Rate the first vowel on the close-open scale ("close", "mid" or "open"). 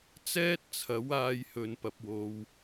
mid